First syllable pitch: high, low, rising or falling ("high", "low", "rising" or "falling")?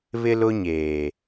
high